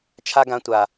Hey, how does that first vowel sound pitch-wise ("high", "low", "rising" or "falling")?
high